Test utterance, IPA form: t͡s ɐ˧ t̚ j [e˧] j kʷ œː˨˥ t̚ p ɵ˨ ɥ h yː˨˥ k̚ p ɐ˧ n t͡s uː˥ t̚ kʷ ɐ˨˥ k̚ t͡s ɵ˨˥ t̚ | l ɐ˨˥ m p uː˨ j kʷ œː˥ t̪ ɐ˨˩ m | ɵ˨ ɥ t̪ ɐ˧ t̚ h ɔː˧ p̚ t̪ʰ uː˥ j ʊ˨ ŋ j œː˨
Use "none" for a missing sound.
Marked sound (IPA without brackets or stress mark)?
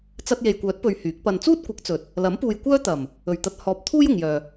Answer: e˨